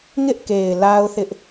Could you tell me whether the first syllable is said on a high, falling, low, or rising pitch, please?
high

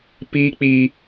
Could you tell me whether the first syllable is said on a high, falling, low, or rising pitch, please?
high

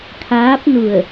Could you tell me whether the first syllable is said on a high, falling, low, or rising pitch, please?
rising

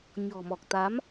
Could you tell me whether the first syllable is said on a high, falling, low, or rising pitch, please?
low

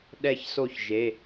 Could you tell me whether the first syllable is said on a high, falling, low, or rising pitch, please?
falling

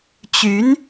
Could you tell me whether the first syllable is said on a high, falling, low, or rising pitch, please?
rising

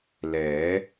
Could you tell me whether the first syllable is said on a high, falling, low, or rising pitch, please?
rising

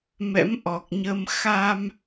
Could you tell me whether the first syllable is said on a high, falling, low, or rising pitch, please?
rising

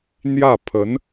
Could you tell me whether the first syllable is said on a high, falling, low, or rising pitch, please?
falling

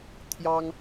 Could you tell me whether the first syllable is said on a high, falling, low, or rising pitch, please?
high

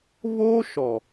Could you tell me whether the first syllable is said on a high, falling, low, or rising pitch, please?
high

